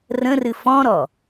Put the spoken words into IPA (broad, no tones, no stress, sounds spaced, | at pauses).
r ə̃ r ɨ f ɔ̃ ɾ ɔ